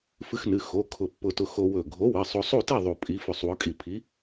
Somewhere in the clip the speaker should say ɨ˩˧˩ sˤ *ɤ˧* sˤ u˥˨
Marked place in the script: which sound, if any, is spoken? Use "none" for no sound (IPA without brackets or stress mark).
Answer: o˧